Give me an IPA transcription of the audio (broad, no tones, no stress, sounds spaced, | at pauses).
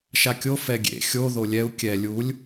ʃ a kʲ o f ɛ ɡʲ ḛ xʲ o ð o lʲ ɛ u̯ kʲ ɛ lʲ u lʲ